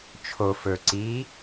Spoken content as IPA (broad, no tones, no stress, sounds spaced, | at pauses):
t͡ʃʰ o f ɵ ǀ i